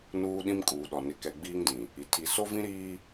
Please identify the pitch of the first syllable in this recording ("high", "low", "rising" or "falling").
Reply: high